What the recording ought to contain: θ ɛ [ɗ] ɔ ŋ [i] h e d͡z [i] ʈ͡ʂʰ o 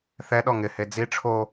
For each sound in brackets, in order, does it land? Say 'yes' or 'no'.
yes, no, yes

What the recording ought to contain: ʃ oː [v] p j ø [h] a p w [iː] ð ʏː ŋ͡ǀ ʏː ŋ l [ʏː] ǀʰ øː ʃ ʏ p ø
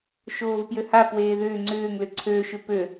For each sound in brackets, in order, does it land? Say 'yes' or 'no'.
yes, yes, no, no

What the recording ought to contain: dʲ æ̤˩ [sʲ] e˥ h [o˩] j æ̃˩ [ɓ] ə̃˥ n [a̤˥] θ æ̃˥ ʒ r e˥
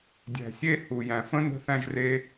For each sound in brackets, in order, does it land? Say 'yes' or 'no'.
yes, no, no, no

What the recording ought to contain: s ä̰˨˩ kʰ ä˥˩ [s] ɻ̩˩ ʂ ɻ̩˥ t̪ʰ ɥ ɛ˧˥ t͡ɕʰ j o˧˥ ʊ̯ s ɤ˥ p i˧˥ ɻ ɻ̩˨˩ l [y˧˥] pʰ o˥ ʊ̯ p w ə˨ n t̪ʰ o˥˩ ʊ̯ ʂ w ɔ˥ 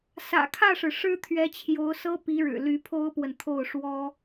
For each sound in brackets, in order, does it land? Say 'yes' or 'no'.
no, yes

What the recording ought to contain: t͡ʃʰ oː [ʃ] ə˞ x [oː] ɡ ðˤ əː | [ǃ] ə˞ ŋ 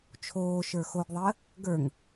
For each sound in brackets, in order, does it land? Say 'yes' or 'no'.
yes, no, no

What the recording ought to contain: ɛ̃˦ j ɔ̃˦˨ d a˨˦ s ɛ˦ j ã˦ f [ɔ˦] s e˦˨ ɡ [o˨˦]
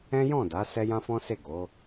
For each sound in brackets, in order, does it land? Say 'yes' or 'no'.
no, yes

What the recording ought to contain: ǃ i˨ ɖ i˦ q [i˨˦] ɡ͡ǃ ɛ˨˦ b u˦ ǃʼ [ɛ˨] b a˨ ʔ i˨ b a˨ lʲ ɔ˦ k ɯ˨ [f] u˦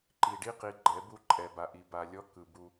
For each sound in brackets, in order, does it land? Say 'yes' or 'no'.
yes, yes, no

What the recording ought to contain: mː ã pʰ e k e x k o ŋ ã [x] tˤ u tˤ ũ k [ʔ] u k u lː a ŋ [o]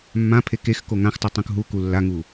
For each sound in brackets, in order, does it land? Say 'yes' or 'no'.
yes, no, no

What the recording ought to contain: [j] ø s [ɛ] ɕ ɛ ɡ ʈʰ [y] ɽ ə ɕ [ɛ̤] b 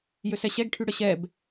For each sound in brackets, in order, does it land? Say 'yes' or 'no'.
yes, yes, yes, no

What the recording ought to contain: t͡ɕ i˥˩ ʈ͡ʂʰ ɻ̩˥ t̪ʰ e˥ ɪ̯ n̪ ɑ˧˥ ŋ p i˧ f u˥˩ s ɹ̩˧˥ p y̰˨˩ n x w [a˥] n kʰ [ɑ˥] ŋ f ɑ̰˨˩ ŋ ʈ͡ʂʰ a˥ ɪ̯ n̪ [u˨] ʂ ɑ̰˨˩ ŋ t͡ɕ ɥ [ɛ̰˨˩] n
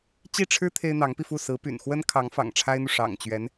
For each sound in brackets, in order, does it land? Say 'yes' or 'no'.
no, no, yes, no

